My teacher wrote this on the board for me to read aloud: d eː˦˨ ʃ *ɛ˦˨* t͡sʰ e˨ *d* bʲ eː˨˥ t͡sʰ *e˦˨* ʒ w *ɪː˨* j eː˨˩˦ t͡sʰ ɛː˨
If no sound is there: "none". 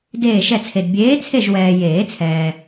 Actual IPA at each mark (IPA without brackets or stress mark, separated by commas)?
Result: ɛ˦˨, d, e˦˨, ɛː˨